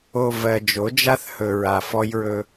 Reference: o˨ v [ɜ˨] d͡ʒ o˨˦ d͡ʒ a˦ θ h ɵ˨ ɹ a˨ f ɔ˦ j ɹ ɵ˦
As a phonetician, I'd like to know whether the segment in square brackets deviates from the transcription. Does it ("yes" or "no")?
no